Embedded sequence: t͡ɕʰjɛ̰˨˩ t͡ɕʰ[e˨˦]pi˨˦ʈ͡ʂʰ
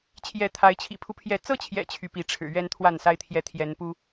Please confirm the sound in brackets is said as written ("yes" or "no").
no